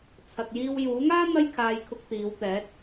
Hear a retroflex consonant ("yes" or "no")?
no